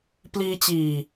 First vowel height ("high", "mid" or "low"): high